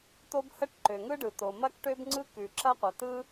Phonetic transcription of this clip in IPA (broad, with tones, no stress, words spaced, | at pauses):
to˥bhə˥ʈ ǃø˩ŋɯ˥ɖɯ˩ to˩mɐ˥kʈø˥b ŋ͡ǀɯ˥ kʉ˩ǁɐ˥ qʷɐ˩tɯ˥